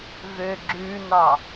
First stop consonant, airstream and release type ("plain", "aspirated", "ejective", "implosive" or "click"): click